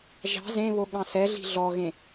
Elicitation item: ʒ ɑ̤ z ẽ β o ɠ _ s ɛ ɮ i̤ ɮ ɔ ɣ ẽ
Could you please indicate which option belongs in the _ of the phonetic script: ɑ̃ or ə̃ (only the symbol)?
ɑ̃